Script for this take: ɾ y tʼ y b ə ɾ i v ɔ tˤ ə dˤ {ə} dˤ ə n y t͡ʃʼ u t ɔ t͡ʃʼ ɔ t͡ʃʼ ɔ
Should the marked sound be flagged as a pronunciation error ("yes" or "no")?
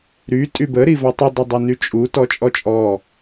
no